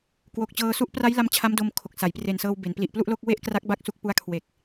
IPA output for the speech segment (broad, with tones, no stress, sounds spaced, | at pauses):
k w o˨˩ k̚ t͡ɕ ɤː˧ s u˥˩ ʔ p r a˦˥ j l a˧ m t͡ɕʰ a˦˥ m d o˧ m kʰ o˨˩ k̚ s a˩˦ j p r e˨˩ n s ɤː˧ w b e˩˦ n p l i˨˩ ʔ p l u˥˩ ʔ l o˥˩ k̚ w e˥˩ ʔ k r a˦˥ k̚ b a˦˥ k̚ s u˦˥ k̚ p u˦˥ a̯ kʰ w e˨˩ k̚